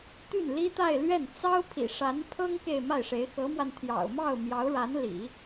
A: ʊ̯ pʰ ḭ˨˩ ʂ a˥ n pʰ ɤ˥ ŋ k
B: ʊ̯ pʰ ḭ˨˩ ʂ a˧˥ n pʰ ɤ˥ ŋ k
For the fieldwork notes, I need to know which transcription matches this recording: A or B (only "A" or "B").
B